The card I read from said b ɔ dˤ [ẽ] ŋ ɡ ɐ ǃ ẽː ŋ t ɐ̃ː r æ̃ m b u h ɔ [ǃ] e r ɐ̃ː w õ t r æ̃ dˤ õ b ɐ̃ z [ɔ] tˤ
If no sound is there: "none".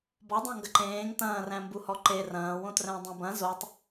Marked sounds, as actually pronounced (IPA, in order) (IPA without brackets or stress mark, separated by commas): ẽ, ǃ, o